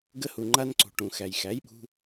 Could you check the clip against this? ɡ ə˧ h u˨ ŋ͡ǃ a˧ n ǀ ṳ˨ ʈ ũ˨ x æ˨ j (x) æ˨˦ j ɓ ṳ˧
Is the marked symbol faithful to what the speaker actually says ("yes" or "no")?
yes